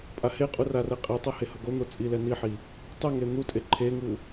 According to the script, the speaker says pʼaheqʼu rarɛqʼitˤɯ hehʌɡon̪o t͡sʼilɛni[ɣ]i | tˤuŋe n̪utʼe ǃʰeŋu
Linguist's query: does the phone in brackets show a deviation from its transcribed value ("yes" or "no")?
yes